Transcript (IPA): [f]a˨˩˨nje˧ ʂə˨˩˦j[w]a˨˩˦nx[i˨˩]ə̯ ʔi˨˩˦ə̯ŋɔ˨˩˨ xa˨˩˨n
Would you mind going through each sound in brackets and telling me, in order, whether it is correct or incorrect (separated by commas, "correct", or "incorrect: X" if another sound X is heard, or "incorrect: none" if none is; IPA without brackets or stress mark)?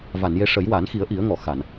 incorrect: v, correct, incorrect: i˨˩˦